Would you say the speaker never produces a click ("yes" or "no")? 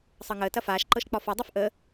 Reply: no